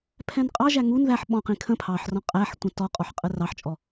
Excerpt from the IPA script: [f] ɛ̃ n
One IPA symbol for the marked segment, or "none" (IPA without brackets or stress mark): pʰ